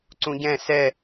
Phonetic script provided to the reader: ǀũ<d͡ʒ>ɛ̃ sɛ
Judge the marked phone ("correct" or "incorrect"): incorrect